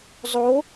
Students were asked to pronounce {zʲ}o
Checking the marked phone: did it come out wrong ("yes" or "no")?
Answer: yes